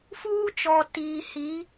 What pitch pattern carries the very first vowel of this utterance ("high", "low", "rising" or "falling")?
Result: high